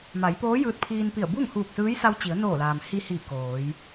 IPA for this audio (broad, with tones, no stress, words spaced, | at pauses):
ma˩˧jpoː˧˥ jɯː˧t̚pʰiː˧npi˧˩ə̯ bu˥˨ŋhuː˧˩k̚sɯː˧˥j sa˧wt͡ɕi˩˧ə̯noː˧˩laː˩m hi˧hiː˧˩ koː˩˧j